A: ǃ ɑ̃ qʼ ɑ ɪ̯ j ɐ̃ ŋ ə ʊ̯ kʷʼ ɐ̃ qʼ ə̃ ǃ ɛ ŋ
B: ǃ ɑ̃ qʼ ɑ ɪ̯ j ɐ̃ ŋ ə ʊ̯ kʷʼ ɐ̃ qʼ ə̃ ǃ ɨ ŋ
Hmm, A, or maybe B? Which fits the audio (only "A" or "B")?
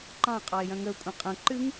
B